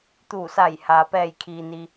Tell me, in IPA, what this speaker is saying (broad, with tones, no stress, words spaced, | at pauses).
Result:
t̪uː˧˩sa˧˩j haː˩pɛː˧˩jkʰiː˩ni˩